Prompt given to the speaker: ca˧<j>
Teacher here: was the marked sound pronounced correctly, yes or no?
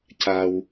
no